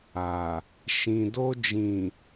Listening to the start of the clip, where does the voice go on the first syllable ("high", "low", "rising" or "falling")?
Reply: low